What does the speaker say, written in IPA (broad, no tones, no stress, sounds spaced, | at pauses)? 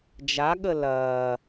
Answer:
d͡ʒ a ɠ ə l ɐː